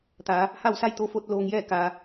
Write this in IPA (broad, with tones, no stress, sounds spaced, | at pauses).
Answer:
t̪ aː˩˧ | h a˥˨ w s a˥˨ j t̪ o˧˥ f o˧˥ t̚ l oː˧ ŋ j ɛː˥˨ k aː˩